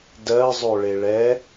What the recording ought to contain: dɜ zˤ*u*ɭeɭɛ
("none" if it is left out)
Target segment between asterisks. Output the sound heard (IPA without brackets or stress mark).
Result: o